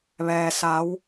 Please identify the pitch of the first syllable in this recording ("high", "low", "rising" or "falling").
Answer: low